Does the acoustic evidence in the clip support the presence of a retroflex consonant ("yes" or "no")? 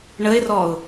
yes